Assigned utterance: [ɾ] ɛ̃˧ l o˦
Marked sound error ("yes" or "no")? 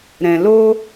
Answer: no